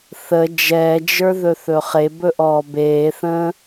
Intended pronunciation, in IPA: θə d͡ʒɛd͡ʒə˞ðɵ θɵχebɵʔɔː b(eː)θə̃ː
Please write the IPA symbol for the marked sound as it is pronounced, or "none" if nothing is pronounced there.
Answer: eː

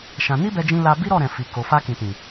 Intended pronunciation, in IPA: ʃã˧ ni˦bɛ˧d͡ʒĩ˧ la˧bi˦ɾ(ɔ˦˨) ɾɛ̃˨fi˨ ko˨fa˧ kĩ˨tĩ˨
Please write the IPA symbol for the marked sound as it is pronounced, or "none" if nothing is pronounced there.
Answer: ɔ˦˨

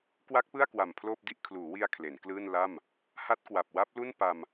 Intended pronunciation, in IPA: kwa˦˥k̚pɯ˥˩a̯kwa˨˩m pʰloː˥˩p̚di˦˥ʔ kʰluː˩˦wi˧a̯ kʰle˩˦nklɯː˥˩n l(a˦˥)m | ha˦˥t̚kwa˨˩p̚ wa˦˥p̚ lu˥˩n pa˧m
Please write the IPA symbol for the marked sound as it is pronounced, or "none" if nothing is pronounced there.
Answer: a˥˩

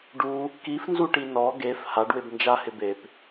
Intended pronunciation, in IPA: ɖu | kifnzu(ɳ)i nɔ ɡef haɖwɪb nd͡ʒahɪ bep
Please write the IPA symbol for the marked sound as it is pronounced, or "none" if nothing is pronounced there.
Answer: ʈ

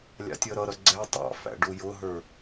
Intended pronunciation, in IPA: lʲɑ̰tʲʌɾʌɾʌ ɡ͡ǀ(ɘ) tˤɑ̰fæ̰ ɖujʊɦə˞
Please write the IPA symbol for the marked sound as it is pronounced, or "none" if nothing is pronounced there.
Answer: ɛ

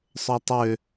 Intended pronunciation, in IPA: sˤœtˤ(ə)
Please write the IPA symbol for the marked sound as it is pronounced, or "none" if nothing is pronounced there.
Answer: ø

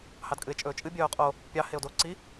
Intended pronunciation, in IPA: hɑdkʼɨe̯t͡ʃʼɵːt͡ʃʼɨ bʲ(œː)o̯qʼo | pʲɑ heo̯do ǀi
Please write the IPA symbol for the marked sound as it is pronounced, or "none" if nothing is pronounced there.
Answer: œː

